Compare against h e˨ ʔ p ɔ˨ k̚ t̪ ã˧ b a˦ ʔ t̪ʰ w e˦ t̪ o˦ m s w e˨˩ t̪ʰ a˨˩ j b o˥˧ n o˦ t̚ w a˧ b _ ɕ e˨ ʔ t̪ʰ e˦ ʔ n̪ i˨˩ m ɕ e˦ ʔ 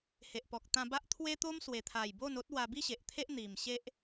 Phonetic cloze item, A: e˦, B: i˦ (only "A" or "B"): B